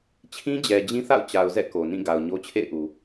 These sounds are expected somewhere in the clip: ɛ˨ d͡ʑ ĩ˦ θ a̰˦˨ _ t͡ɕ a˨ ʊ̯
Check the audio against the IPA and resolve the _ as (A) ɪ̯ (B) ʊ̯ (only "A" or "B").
B